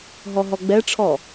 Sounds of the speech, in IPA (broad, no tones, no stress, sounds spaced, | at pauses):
ɦ ɔ ɦ ɔ ɡ͡b ɛ ʈ͡ʂʰ ɔ